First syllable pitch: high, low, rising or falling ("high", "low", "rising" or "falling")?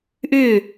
falling